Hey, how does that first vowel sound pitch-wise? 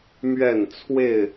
falling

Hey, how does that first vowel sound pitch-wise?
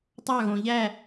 falling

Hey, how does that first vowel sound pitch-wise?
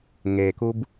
low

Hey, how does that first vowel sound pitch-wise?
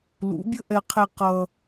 rising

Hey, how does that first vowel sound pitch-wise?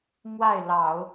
falling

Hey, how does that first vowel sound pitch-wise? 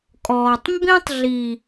low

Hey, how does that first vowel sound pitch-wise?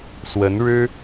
rising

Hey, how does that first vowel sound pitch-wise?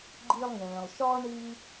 high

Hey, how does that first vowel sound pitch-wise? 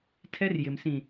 high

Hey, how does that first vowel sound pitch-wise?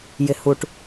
low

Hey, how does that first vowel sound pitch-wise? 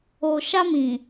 low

